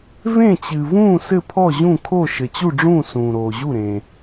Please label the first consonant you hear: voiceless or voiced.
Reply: voiced